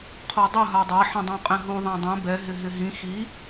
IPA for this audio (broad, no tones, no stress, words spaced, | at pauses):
qʰodˤʊ ɦadˤa ħɛ̃dˤũqʼɛ̃ɦu ðˤãdˤɛ̃ bɛ ɦɪɦɪɦĩ xi